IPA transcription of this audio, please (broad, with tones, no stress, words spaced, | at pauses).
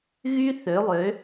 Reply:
ɣy˥θø˨˦lˠø˨˦